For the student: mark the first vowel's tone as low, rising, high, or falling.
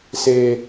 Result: high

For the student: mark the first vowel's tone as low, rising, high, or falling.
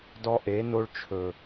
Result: high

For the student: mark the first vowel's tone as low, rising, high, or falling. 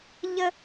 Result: high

